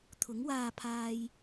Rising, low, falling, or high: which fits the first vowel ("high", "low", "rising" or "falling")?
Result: rising